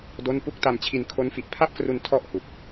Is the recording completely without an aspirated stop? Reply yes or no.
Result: no